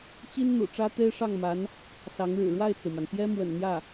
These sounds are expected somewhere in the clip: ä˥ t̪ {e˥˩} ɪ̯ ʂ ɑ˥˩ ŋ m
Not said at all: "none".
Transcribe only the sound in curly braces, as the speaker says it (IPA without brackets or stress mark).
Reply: e˥